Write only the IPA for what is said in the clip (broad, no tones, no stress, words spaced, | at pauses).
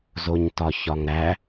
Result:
zoɲtɒçɒŋɾæ